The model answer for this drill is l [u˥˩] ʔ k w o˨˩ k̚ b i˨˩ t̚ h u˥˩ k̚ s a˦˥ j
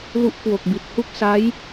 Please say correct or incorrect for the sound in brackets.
incorrect: u˦˥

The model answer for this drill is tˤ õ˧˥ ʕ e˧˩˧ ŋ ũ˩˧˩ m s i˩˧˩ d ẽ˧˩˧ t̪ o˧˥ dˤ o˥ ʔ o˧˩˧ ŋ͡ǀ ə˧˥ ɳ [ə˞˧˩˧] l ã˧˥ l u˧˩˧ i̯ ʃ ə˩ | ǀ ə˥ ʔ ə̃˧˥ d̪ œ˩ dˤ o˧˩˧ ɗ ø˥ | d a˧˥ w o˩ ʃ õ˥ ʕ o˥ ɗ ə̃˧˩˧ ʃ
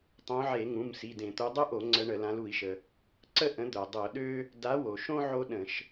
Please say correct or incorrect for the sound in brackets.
incorrect: ə˧˩˧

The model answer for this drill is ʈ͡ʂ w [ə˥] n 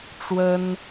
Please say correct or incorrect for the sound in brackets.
correct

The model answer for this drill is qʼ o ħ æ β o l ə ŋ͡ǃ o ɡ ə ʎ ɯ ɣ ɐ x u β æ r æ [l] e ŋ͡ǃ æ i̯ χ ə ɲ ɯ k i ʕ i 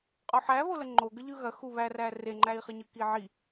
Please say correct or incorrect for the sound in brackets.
incorrect: r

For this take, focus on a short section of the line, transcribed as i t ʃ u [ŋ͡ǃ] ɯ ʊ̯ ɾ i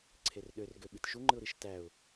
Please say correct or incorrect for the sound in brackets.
correct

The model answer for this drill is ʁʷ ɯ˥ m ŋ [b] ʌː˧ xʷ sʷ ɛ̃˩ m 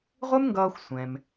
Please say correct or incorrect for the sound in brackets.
incorrect: ɡ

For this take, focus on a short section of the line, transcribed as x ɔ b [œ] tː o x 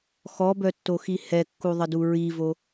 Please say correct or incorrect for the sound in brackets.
correct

